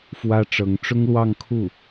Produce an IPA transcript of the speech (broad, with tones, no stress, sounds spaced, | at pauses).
f w ä˥ ʈ͡ʂ ɤ˧˥ ŋ ʈ͡ʂ ʊ˥ ŋ l w ɑ˥˧ ŋ kʰ u˥˩